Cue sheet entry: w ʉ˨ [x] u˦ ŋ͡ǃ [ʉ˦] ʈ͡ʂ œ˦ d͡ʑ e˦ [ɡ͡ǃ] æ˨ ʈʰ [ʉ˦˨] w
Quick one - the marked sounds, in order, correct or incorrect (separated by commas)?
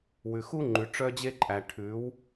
correct, incorrect, incorrect, incorrect